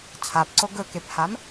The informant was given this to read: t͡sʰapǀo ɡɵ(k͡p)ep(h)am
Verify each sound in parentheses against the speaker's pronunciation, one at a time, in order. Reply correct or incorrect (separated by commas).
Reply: incorrect, correct